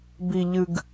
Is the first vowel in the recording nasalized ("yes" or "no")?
no